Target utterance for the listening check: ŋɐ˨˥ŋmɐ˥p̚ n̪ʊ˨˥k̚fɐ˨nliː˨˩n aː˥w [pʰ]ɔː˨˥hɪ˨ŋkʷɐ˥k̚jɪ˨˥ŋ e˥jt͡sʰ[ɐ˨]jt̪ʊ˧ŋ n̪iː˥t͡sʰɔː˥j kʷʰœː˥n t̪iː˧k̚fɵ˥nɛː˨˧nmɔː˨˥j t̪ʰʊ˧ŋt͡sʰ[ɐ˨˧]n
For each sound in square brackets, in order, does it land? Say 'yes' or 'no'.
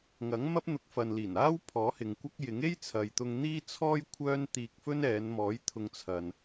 yes, yes, no

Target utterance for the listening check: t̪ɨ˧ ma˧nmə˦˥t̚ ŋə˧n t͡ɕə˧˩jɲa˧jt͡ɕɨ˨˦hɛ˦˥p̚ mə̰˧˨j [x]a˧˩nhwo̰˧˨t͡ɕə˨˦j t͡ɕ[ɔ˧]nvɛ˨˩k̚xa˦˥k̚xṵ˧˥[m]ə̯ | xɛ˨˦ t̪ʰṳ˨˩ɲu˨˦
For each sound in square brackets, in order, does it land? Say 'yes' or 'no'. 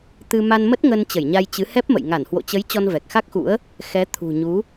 no, yes, no

